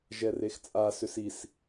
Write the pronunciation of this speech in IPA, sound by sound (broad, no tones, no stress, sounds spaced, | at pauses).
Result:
ʒ ɛ r e x t͡sʼ a s ʏ s i s